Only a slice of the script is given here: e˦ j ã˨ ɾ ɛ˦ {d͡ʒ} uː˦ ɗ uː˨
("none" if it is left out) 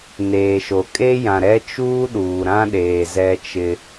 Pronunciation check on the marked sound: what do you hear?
t͡ʃ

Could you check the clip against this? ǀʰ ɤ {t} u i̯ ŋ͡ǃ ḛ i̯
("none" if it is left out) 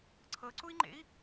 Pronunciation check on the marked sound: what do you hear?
ǀ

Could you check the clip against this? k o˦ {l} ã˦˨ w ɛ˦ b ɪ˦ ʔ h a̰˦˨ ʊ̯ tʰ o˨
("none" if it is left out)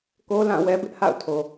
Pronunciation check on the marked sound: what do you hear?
l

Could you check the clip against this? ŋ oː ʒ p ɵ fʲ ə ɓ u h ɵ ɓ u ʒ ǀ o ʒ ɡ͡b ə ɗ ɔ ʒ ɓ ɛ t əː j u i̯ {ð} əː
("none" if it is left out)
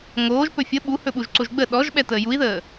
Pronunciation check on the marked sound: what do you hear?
ð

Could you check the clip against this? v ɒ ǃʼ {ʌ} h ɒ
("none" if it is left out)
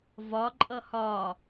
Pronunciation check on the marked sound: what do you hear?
ʌ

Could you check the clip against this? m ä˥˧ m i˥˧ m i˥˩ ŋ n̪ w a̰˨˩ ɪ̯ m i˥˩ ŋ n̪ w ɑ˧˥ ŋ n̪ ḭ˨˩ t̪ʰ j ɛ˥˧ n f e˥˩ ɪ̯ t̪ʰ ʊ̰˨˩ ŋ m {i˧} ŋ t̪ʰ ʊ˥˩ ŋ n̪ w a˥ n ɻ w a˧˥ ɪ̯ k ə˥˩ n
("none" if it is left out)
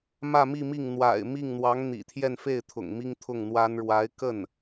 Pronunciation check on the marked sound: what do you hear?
i˥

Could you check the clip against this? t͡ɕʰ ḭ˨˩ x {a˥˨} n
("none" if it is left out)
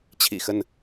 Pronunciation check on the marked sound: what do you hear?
ə˥˨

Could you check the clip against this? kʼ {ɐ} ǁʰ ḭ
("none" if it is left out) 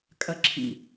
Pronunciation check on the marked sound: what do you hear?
ɐ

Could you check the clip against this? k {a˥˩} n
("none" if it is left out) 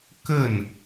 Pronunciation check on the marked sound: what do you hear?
ə˥˩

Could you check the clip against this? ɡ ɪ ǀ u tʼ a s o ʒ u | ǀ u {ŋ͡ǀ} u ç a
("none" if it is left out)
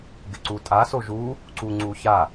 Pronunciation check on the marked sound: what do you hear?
ŋ͡ǀ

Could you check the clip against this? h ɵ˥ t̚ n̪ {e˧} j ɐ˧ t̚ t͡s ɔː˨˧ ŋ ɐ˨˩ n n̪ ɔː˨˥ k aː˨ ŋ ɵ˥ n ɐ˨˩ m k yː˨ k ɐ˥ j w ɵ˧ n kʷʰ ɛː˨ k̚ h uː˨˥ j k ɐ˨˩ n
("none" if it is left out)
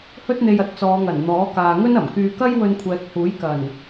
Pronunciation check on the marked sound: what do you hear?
e˧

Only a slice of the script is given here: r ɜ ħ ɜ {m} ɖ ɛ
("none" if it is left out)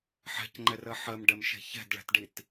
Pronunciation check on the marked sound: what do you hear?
m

